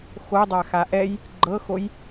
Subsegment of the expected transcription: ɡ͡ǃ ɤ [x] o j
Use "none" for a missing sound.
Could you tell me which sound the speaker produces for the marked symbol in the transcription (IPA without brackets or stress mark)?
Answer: x